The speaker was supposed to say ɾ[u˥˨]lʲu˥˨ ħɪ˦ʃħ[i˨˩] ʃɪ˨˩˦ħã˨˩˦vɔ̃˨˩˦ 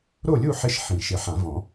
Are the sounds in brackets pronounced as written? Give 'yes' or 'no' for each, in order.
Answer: no, no

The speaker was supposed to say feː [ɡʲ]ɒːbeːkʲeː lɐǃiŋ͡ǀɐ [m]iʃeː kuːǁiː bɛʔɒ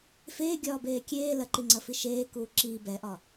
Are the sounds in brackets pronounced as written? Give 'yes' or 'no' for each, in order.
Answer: yes, no

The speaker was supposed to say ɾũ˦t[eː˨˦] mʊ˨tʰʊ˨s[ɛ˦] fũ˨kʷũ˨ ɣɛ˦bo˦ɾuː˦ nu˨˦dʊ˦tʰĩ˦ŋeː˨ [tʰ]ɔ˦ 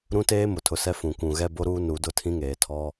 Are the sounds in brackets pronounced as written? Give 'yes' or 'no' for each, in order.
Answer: no, yes, yes

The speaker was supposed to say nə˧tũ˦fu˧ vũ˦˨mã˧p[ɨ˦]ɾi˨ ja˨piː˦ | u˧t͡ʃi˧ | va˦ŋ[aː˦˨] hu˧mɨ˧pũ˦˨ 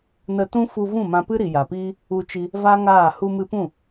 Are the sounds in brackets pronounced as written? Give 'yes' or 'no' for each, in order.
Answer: yes, yes

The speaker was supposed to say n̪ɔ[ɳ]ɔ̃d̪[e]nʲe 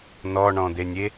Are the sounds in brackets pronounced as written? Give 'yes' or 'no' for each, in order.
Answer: yes, yes

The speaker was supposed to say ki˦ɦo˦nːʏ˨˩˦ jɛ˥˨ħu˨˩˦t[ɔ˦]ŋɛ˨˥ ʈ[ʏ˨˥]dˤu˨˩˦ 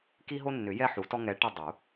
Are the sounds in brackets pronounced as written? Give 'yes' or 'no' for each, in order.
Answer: yes, no

